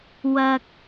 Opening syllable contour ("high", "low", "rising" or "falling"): low